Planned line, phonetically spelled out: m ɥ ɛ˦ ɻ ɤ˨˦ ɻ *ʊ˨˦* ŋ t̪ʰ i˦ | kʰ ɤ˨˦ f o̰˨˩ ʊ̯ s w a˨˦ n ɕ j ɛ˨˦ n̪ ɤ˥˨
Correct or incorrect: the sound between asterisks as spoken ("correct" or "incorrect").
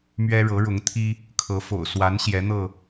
correct